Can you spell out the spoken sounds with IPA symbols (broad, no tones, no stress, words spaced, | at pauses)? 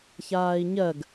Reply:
çaːi̯ɲɜɡ